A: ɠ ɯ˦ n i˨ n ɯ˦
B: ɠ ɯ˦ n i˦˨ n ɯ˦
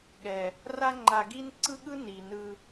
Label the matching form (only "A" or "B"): A